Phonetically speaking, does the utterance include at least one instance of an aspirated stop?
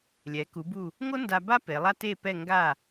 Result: no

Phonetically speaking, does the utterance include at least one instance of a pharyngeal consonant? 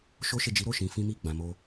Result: no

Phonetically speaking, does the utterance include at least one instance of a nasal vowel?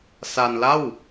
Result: no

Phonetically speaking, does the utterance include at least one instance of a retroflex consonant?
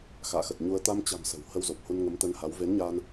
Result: no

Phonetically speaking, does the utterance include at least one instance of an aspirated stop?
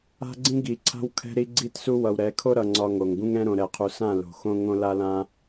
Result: yes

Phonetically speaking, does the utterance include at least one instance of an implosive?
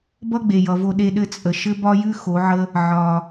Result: yes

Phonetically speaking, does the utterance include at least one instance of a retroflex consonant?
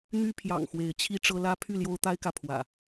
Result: yes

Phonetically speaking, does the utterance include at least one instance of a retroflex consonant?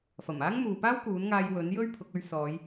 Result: no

